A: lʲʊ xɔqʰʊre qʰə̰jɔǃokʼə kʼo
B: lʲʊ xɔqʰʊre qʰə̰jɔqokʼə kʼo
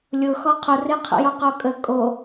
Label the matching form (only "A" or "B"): B